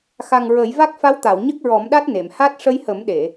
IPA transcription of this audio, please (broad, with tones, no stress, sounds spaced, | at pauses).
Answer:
x a˨˩ ŋ ɹ ə˨˩˦ j v a˦˥ k̚ f a˧˥ w t̪ a˨˩˨ w ɲ ə˦˥ k̚ ɹ ɔ˨˩˦ m ɗ a˦˥ t̚ n e˨˩˨ m h a˦˥ t̚ ʂ ə˧ j h ə˨˩˦ m ɗ e˨˩˨